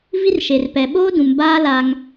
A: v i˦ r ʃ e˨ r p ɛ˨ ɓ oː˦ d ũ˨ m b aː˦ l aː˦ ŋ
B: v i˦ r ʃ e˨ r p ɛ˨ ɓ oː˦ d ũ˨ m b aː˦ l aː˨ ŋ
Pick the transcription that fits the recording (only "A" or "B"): A